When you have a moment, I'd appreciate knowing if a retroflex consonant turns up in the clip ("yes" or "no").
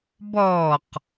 no